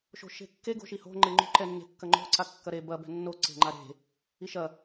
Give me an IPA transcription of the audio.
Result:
ʃ o̤ ʃ e̤ kː e ɡ o̤ ʃ i h o̤ ŋ͡ǃ e ŋ͡ǃ o̤ ǃ ɛ nː e̤ kː ɐ ŋ͡ǃ o̤ ǀ a kː ɐ ɾ e b ɐ b ɛ̤ nː o ǀ e̤ ŋ͡ǃ a ɾ e̤ | i ʃ ɐ

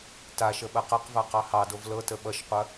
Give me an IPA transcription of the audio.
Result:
t a ʃ ə ɓ ɐ q ɐ q v a q ɑ h ɑ d o v l ɤ t ə ɓ ʌ ʃ qʷ ɐ

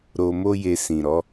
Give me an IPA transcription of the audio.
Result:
ɾ o˧ m o˦ j e˧ s ĩ˨ ɾ ɔ˨˦

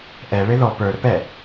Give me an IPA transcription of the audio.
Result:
ʔ ɛ ɭ ɪ ð ɔ p ə˞ ɾ ɵ p ɛ

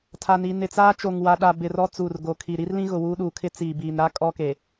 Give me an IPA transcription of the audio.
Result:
tʰ a˨ n iː˨ n ɪ˨ t͡s aː˦ t͡ʃ o˨ ŋ w a˨ ɗ a˨ b ɪ˨ r ɔ˦ t͡s uː˨ r ɡ o˨ kʰ i˨ ɾ i˦ r l ĩ˦ ɣ ʊ˨ w uː˦ ɗ uː˨ kʰ ɪ˦ t͡s iː˨ b iː˨ n ɾ a˦ kʼ ɔ˦ k e˨

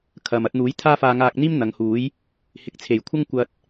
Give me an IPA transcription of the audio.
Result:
kʰ ɐ˨ m ɐ˧ t̚ n̪ uː˨˥ j t̪ʰ aː˥ f aː˧ ŋ aː˧ k̚ n̪ iː˥ m n̪ ɐ˨˧ ŋ h uː˨˥ j | h ɪ˨ k̚ t͡sʰ e˨˩ j kʷʰ ɐ˥ ŋ kʷ ɐ˧ t̚

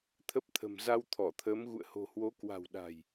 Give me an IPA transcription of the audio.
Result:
t̪ʰ ə˦˥ p̚ t̪ʰ ə̤˨˩ m z a˧ w t̪ʰ ɔ˧˩ t̪ʰ əː˨˦ m ɣ ṵ˧˨ ə̯ h o̤˨˩ h w o˨˦ k w a̤˨˩ w ɗ a̤˨˩ j

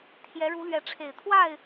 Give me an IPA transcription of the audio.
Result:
t̪ʰ j ɛ˨˦ ɻ u˨˦ l ɥ ɛ˨˦ ʈ͡ʂʰ e˨˩ ɪ̯ t̪ʰ w a˥˨ ɪ̯

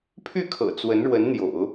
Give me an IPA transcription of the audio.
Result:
pʰ y˥˩ kʰ ɤ̰˨˩ t͡s w ə˧˥ n ɻ w ə˧˥ n n̪ j o̰˨˩˦ ʊ̯

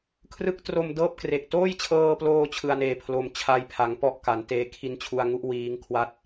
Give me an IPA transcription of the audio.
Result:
kʰ r ɯ˦˥ k̚ t r o˧ m d ɤː˥˩ p̚ k r e˨˩ k̚ t oː˥˩ j t͡ɕʰ ɤː˧ p l oː˧ t͡ɕʰ ɯ˧ a̯ n eː˧ pʰ l o˧ m t͡ɕʰ a˧ j pʰ a˩˦ ŋ p ɔ˦˥ ʔ k a˩˦ n t eː˧ kʰ i˧ n t͡ɕʰ u˧ a̯ ŋ u˥˩ ʔ w iː˦˥ ŋ kʰ w a˥˩ t̚

